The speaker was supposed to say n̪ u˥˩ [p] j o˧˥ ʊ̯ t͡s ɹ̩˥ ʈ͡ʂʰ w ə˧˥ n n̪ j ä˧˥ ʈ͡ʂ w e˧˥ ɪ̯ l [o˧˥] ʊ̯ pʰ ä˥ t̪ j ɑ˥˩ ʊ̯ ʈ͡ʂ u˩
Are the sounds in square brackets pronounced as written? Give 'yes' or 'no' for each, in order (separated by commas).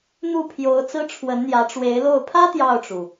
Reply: no, no